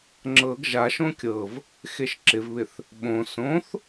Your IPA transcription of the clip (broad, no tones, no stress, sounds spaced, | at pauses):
ŋ͡ǁ ɤ ɡ ʒ a ʃ õ kʲ ɤ v | x e ʃ ǁ ɪ v β ɪ θ | ɓ õ s õ θ